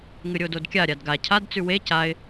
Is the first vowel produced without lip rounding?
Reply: yes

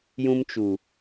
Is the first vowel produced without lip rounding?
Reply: no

